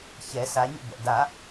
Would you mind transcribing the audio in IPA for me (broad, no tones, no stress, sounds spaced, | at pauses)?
ç ɛ s a ɲ ə̰ b ɛ̰ d a